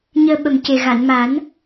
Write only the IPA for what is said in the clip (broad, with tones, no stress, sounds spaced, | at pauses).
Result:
ɲ əː˧ ɓ ə˨˩ m c e˨˩ ɣ a˨˩˨ n m a˨˩˦ n